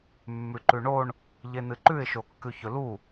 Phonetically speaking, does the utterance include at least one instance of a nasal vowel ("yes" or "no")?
no